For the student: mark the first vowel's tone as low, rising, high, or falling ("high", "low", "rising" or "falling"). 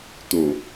low